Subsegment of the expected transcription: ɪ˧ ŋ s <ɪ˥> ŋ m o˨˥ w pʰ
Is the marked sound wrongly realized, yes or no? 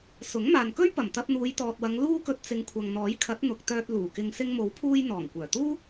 yes